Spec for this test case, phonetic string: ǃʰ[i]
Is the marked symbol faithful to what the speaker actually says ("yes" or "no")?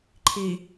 yes